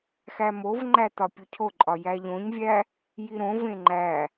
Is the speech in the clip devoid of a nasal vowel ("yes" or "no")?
no